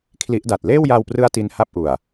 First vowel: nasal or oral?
oral